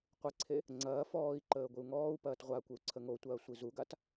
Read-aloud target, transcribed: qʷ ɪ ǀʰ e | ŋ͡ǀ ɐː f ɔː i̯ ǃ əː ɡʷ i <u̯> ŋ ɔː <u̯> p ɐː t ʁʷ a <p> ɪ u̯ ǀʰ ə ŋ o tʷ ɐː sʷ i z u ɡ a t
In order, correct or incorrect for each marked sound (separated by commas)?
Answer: correct, correct, incorrect